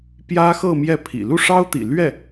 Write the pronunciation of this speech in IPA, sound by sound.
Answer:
pjä˥xɤ˥˧ mjɛ˥˩pʰḭ˨˩ lu˥˩ʂɑ˥ʊ̯t̪ḭ˨˩ lɥɛ˥˩

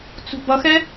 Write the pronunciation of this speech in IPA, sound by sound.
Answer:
t͡sṳbʌxɛ

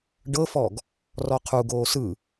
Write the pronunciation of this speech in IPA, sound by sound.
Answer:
ɖɤfɔɡ | rɔqʰuɡoː sɯ

